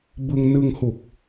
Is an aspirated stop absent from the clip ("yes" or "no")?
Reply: yes